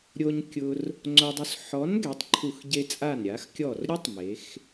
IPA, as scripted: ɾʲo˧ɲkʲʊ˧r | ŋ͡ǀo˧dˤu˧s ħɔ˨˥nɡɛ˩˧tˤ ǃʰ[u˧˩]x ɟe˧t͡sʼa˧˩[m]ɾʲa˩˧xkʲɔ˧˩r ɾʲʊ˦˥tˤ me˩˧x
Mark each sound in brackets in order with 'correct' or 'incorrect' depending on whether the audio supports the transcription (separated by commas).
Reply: correct, incorrect